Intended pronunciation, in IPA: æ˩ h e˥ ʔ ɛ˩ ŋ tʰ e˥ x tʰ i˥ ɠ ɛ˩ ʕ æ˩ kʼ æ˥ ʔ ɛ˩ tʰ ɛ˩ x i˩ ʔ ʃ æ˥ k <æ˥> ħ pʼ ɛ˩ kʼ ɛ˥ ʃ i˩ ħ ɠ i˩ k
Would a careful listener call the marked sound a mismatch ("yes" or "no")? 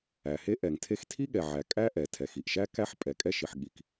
no